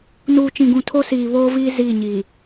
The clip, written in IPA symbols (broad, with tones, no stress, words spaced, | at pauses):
nuː˨t͡ʃĩ˨ɡũ˨ tʰo˦siː˨ βoː˦viː˦ ziː˦˨ɲiː˨